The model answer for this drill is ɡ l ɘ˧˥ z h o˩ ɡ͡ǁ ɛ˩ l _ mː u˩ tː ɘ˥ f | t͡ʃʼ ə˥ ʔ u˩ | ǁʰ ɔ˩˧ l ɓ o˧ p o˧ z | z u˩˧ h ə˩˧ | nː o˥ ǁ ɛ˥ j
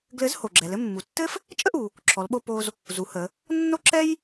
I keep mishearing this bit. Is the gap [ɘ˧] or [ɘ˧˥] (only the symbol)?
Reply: ɘ˧